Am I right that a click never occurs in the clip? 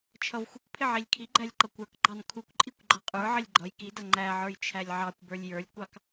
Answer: no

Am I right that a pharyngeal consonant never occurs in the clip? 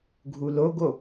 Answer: yes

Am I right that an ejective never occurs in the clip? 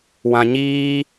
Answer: yes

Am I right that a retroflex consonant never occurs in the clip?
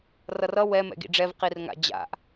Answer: no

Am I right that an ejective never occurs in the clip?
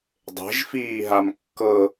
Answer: yes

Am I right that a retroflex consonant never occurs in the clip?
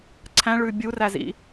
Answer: no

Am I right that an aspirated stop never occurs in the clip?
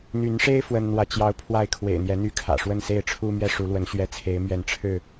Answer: no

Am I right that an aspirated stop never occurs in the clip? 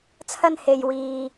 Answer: no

